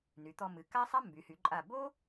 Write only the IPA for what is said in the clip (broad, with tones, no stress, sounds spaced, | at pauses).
n y˩˧ t̪ ɔ˧ m ɨ˩˧ k a˥ sˤ a˥ m b y˩˧ h y˩˧ ǃʼ a˧˩ b o˥